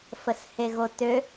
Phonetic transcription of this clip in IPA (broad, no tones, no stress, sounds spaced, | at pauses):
f ə s h e ɣ o t ø